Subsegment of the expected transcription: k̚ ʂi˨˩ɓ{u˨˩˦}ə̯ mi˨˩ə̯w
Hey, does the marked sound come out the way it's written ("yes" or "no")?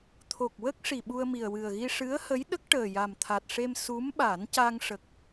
no